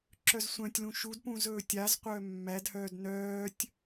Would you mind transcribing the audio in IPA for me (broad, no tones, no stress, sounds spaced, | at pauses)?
ǁ œ z sʷ œ̃ tʲ l ũ ʃ u d p ũ z ɵː tʲ a z qʷ œː mː æ d h œː d n œː tʲ